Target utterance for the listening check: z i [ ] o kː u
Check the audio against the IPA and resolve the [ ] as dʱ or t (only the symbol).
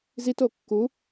t